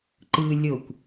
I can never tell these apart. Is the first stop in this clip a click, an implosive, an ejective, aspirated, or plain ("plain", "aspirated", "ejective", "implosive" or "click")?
click